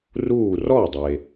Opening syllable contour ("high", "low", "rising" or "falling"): falling